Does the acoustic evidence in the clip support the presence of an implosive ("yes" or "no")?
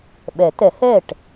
yes